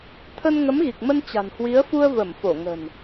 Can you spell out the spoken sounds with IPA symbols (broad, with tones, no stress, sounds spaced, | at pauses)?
t̪ʰ ə˧ n ŋ ə˨˦ m ɣ i˨˩ k̚ m ə˧ n t͡ɕ a̤˨˩ n h w i˨˦ ə̯ f u˧ ə̯ v ə˧˩ m f o˧˩ ŋ ə̤˨˩ n